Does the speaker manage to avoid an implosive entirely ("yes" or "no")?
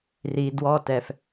yes